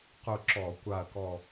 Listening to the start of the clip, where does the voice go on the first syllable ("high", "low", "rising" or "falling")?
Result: falling